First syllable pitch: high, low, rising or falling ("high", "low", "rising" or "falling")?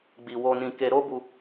low